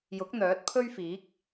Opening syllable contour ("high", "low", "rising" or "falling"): rising